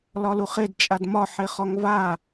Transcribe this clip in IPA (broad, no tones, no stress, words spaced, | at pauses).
lɒluχed t͡ʃʼadmɒ ħeχɔŋva